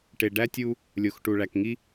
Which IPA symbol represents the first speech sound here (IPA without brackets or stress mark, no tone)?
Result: ʈ